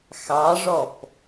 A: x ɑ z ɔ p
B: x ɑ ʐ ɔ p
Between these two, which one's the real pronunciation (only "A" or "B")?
B